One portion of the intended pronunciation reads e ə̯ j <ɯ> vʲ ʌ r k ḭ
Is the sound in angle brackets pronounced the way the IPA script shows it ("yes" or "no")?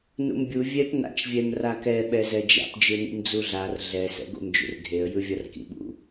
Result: yes